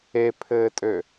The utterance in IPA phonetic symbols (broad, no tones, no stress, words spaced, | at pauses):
epʰɘːtʼø